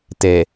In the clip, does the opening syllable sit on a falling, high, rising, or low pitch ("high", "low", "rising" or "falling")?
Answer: low